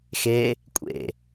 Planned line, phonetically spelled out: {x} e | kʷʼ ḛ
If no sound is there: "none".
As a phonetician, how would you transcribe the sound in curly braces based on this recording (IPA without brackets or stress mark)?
x